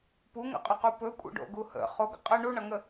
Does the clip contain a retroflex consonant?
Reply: yes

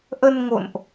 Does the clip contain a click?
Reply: no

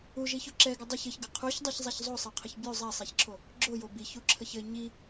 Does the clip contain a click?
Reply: yes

